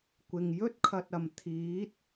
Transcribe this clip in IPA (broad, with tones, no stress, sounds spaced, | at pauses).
kʷ ɪ˨ ŋ j ɵ˥ t̚ kʰ ɐ˨ t̚ ɐ˨˩ m t̪ʰ iː˨˥ t̚